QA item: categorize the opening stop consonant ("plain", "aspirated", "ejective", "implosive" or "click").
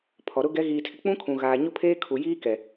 aspirated